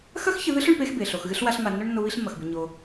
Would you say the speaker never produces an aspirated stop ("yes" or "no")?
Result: yes